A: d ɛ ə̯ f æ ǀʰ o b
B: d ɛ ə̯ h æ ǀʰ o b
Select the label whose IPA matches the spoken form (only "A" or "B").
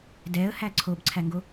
B